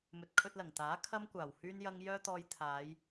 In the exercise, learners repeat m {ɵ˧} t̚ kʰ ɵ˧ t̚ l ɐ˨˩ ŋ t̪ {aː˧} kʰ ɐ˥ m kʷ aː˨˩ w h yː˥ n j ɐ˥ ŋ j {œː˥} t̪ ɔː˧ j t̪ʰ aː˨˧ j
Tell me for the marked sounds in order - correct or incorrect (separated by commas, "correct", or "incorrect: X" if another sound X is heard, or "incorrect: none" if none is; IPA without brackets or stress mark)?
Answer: incorrect: ɵ˨, incorrect: aː˨˥, correct